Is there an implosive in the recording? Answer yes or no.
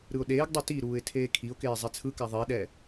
yes